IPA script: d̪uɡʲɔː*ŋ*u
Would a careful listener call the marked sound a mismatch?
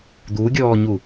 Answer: yes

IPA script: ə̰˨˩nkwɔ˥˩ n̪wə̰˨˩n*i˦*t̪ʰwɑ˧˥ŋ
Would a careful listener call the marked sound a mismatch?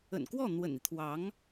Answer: no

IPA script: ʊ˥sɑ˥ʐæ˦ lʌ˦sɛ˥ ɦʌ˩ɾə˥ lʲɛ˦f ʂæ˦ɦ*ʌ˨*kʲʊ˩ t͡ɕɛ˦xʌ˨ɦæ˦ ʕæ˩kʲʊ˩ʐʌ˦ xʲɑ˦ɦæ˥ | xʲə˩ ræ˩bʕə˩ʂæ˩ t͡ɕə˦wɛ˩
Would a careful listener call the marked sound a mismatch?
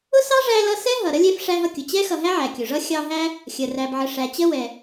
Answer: yes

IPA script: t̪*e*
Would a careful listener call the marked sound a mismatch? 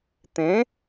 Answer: yes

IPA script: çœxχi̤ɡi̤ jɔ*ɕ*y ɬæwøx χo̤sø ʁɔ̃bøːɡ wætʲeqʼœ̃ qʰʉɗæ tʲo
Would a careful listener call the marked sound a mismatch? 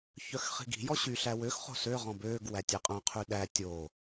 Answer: no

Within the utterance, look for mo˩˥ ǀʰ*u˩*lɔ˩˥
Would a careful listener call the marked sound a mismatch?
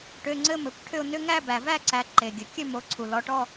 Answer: no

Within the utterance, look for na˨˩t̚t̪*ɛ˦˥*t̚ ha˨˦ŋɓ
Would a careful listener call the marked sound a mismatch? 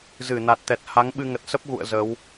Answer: yes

